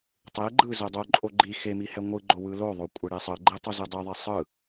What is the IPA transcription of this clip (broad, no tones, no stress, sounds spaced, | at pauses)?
tˤ e ɡ͡ǃ ɯ z ɛ dˤ o ǃʼ o ɡ͡ǃ i x e m i h ɛ ŋʷ ɯ ɡ͡ǃ o w ɯ l o ðˤ o kʷʼ ɛ ɽ e sˤ ɯ ɡ͡ǃ e tˤ o z ɯ dˤ ɯ ðˤ e sˤ ɯ